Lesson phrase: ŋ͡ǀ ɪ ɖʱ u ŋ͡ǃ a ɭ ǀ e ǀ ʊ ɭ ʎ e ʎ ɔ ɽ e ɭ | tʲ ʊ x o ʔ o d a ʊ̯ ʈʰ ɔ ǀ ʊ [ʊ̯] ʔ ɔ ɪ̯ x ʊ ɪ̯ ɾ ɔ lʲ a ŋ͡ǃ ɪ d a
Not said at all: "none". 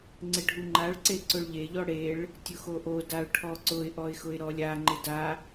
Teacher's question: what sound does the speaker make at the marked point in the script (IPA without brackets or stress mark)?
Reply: ɪ̯